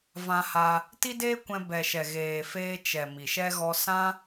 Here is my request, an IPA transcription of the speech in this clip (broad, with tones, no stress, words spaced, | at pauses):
vã˧ha˧ | ti˦deː˦kʷɛ̃˧ bɛ˨ʃɛ˨ ɣeː˨feː˧ t͡ʃɛ˨ mi˨ʃɛ˦ɣɔ˦ sã˦